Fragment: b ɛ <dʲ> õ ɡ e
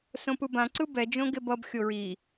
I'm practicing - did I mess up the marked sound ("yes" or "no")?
yes